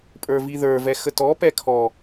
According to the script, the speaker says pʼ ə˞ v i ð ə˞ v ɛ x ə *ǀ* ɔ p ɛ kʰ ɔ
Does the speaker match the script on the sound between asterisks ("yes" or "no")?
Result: no